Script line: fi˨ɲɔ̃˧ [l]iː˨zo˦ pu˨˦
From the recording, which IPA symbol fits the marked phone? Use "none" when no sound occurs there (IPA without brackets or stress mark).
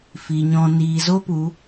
n